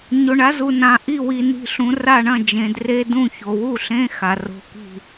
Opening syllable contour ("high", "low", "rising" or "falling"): low